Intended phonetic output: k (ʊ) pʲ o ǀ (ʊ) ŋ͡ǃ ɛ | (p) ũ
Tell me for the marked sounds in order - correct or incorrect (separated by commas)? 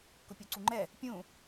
correct, incorrect, incorrect